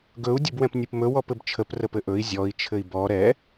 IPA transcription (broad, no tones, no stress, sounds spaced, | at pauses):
ɡ ɵ u̯ dʲ ɘ b w ɛ̃ p nʲ ɨ p m ɵ w ɔ p ɘ b t͡ʃʰ ə p r ə p ɘ ʔ ɵ i̯ zʲ ɔ i̯ t͡ʃʰ ɘ i̯ b ɔ ɾ ɛ